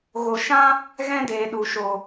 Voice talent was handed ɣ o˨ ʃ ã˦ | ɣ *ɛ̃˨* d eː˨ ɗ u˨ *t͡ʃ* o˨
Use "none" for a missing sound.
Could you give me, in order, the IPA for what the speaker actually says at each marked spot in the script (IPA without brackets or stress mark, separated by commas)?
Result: ɛ̃˦, ʃ